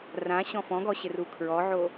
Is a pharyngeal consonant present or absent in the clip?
present